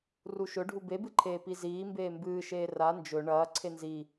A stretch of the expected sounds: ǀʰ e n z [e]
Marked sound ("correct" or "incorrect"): incorrect